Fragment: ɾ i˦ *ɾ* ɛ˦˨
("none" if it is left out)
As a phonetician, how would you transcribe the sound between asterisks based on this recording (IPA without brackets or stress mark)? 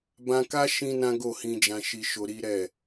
ɾ